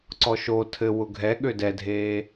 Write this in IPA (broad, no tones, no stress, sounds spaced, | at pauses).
ǀ ɔ ʃ o tʰ ɘ w ʊ ɡʱ ɛ ɠ ø d ɛ dʱ eː